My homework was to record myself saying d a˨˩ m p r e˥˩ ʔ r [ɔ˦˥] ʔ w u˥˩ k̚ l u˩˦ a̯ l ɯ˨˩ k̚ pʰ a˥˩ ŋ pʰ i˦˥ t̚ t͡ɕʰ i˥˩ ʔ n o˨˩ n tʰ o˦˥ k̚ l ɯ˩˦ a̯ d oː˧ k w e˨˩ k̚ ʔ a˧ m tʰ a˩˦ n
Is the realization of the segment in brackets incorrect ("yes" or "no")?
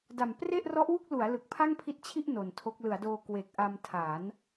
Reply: no